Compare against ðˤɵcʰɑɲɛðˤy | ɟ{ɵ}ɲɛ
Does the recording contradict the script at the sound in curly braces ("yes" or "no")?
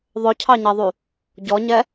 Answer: yes